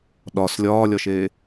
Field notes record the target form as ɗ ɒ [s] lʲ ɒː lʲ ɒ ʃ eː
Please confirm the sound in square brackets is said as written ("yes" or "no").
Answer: yes